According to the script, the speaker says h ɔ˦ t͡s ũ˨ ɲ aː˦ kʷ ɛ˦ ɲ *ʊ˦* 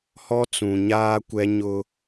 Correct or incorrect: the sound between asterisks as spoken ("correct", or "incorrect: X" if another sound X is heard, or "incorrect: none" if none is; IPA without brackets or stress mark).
correct